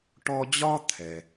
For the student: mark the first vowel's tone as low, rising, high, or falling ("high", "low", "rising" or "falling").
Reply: high